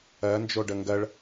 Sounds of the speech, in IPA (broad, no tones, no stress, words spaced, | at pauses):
ɜ nd͡ʒoɖəŋɡɜɭ